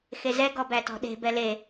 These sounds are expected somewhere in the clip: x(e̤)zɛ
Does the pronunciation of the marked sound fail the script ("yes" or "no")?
yes